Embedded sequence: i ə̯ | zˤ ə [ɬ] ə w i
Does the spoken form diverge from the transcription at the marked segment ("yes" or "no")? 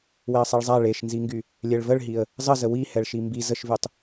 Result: yes